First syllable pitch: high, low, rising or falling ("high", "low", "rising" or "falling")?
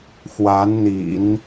rising